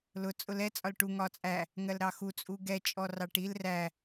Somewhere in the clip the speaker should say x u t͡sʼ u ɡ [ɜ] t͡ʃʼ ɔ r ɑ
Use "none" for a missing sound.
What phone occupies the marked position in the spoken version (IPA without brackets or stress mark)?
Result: ɛ